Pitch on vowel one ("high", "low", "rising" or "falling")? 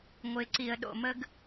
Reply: low